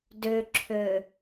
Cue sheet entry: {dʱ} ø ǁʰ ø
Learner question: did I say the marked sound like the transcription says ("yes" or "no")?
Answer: no